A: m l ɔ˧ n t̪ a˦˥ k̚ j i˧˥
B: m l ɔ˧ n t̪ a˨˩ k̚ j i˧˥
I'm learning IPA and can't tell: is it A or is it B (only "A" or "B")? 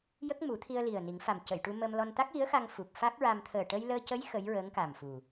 A